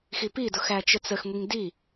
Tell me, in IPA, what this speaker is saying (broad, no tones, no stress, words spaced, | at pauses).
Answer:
xipi dʊxæt͡ʃət͡səx ŋʷiŋdi